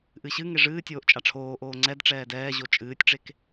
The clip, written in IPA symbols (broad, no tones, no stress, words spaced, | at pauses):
ʔɨɕɨŋe ʐɨː tʲoːʔt͡ʃʼaʈ͡ʂʰoːʔoː ŋ͡ǀɛd ʈ͡ʂɛːdɛːʑo t͡ʃʼɨːtʲʈ͡ʂek